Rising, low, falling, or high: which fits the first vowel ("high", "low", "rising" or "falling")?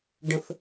falling